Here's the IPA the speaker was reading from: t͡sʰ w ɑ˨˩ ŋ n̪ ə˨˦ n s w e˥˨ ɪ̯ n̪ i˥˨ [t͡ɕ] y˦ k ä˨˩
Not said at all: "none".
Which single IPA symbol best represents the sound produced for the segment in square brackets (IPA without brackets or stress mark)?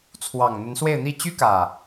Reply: t͡ɕ